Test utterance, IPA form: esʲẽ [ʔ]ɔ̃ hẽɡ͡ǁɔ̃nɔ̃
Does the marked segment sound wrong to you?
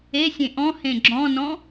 no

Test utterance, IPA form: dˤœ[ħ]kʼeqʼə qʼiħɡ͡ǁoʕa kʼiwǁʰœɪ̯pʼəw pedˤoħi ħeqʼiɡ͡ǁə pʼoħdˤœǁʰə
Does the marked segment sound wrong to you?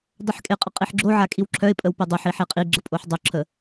no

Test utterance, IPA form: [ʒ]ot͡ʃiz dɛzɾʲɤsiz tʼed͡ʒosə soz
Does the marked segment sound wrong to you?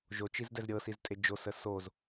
no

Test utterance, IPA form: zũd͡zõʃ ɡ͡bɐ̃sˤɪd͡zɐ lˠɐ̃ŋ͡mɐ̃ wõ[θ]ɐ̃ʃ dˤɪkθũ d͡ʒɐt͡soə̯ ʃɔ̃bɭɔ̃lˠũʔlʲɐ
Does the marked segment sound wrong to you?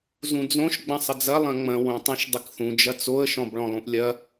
yes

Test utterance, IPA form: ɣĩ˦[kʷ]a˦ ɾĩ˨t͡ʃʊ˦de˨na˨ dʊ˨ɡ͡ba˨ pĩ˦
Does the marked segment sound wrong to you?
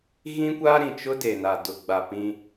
no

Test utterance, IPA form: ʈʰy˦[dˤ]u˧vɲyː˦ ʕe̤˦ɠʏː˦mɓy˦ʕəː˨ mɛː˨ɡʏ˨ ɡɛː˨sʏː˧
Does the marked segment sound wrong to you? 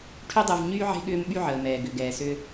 no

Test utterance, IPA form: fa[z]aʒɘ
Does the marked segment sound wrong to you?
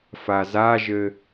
no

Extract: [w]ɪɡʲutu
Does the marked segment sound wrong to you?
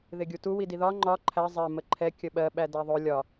yes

